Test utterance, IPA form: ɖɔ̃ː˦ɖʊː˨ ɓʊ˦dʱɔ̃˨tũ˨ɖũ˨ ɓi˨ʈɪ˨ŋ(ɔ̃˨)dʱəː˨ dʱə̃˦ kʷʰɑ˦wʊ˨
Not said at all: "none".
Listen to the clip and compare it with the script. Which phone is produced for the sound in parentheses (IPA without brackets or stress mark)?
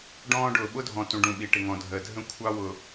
ɔ̃˨